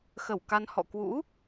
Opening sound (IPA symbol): x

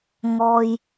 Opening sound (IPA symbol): ŋ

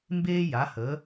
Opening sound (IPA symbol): m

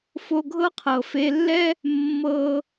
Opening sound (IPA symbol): f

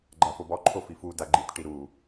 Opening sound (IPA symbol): ɡ͡ǃ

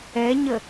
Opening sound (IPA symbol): ɛ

